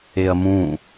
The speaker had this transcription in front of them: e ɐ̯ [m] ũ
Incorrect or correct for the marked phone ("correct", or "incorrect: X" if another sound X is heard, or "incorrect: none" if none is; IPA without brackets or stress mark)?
correct